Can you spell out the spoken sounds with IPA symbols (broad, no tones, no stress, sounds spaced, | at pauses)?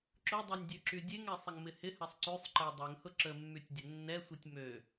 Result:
ǁ ʊ dˤ ø nʲ dʲ ø ǁ y dʲ e ŋ ɛ sˤ ə ŋ m ɪ h ɪ h ɛ sˤ ǀ y sˤ ǃ ɪ dˤ ɛ ŋ h ʊ ǁ ə mː y tʲ dʲ ə nː ɛ sʷ i tʲ m ø